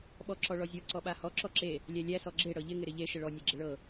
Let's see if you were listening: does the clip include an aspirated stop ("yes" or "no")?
no